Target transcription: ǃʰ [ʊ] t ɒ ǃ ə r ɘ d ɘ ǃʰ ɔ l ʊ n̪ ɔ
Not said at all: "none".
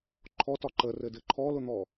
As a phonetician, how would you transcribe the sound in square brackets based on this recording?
ɔ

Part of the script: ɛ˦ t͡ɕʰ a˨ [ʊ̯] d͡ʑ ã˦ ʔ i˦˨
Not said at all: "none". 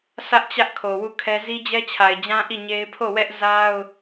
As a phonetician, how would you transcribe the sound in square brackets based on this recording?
ɪ̯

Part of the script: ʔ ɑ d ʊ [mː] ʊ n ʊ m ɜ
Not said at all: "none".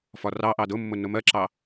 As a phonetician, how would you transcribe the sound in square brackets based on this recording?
mː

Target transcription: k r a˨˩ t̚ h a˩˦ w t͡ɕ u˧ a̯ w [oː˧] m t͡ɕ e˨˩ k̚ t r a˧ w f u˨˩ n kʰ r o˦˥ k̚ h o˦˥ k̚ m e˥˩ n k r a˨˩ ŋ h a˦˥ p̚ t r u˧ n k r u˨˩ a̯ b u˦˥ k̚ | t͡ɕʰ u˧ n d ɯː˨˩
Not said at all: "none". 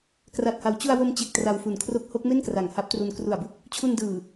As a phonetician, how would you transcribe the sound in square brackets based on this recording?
o˧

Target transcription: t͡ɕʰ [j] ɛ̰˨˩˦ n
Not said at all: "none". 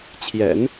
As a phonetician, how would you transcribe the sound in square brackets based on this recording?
j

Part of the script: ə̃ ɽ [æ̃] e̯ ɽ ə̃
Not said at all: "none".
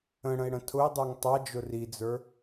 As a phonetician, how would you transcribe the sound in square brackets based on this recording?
ə̃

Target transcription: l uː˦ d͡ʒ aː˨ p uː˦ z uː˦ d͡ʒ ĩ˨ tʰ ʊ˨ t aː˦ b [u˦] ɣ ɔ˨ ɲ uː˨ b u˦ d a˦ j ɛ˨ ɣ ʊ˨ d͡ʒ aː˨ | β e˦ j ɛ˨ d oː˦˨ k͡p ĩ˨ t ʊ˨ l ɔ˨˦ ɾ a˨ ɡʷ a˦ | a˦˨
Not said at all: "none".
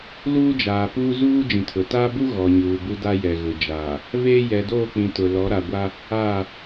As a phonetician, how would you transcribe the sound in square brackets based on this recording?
u˦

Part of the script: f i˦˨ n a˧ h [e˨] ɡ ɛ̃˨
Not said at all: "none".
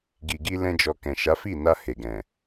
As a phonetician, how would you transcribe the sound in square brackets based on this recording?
e˨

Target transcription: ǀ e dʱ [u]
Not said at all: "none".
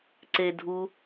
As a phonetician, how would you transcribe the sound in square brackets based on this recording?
u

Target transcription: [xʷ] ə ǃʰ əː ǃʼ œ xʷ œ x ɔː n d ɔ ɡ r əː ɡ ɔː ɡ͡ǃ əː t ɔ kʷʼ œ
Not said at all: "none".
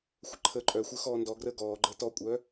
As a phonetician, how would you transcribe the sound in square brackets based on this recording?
xʷ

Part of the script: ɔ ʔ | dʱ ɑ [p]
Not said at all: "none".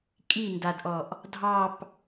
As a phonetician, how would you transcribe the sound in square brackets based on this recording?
p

